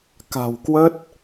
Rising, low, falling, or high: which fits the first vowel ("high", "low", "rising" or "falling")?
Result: low